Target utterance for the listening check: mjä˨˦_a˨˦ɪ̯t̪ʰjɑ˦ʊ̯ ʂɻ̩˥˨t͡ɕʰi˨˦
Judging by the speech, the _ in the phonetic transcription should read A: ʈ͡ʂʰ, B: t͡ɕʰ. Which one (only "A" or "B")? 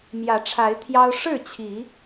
A